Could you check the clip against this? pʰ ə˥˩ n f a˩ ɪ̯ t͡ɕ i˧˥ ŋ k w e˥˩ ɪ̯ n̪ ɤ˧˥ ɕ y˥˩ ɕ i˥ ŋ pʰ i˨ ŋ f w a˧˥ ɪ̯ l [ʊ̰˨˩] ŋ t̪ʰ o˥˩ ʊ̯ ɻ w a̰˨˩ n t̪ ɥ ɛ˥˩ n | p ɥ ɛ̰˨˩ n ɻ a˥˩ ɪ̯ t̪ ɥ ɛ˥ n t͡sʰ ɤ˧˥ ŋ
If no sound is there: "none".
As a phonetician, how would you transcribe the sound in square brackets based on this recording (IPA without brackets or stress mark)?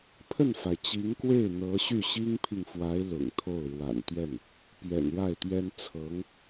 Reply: ʊ̰˨˩